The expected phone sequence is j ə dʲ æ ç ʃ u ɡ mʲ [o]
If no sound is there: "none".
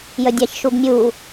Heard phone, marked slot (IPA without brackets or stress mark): u